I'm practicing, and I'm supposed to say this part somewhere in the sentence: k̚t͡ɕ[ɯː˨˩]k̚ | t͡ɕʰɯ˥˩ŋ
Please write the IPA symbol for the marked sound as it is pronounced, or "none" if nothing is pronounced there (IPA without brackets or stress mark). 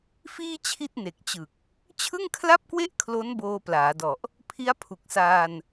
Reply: ɯ˨˩